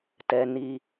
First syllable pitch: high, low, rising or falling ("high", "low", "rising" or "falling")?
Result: low